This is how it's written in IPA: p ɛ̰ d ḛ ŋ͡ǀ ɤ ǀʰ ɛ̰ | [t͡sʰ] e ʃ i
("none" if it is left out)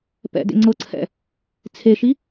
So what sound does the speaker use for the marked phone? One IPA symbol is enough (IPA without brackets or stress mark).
t͡sʰ